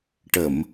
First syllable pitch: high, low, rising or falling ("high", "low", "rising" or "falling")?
low